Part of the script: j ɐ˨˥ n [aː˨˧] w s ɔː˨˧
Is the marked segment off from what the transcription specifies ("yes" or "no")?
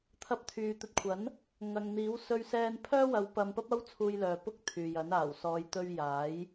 yes